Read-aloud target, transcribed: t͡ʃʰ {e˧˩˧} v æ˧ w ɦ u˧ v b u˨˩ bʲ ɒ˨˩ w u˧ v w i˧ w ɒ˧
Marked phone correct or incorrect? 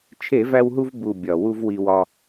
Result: correct